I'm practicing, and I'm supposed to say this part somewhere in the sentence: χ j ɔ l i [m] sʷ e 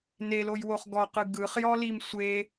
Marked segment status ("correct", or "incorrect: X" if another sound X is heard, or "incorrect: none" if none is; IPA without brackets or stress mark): correct